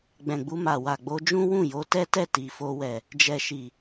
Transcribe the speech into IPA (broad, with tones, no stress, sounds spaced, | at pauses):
ɡ͡b ɛ̃˨ ɡ͡b u˧ m a˨ w a˨ ɡ͡b o˧ d͡ʒ ũ˦ w ũ˦˨ j o˧ t ɛ˦ t ɛ˦˨ t i˨ f o˧ w ɛ˨ | d͡ʒ ɛ˨ ʃ i˨